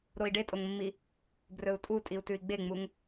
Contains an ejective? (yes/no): yes